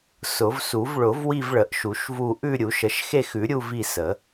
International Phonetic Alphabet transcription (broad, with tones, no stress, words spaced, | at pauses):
sʊ˨˩˦vsu˨˩˦v ɭʊ˨˩˦vwi˦˨vɭə˨˩˦ʔ ʃu˨˩˦ʃvu˦˨ ʔʉ˦˨ ɾʲu˨˩˦ʃə˨˩˦ʃ xe˦˨xʉ˨˩˦ɾʲu˦˨ vi˦˨sə˨˩˦